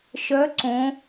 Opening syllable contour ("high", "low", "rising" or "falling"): rising